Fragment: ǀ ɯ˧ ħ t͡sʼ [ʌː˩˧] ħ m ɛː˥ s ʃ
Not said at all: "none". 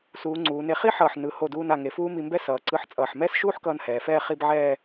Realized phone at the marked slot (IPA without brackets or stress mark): ʌː˧˩